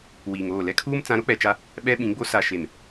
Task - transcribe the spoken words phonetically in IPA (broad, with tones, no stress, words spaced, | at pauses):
wiː˨ŋoː˦˨ lɛ˦kʰuː˦m t͡sã˨˦ɾo˦k͡pɛ˨t͡ʃa˦ | ɓɛ˦ɓĩ˨˦ɡ͡bo˦ sa˨ ʃe˨m